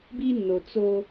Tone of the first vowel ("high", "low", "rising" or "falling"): high